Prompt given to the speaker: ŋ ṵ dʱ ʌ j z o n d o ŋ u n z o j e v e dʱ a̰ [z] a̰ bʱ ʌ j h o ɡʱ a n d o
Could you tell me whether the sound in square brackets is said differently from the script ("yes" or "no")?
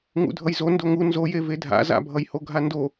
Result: no